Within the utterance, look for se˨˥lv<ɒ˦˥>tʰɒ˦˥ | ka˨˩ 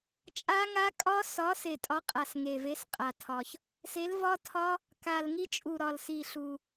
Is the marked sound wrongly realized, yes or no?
no